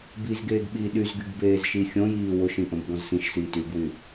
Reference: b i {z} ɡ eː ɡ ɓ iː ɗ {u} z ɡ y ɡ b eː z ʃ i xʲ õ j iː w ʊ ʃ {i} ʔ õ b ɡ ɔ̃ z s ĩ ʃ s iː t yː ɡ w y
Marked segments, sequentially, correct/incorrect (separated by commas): correct, incorrect, incorrect